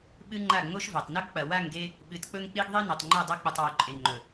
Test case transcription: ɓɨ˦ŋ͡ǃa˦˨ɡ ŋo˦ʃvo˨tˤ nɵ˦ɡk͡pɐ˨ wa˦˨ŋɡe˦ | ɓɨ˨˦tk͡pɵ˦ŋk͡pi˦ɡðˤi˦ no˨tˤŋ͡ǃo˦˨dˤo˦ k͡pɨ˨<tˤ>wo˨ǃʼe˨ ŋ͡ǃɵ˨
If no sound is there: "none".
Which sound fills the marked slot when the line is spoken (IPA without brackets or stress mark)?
tˤ